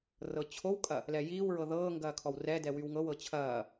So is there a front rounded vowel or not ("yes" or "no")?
yes